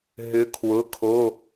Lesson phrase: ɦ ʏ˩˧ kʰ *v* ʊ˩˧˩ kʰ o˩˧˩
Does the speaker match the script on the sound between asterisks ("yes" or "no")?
no